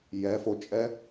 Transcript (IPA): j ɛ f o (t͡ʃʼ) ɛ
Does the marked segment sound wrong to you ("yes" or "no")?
no